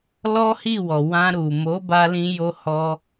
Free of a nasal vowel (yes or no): no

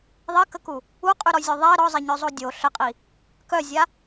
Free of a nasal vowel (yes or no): yes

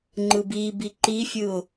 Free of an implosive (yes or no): yes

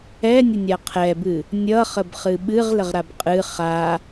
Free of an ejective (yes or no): no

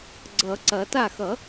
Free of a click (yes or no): no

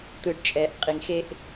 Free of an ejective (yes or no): no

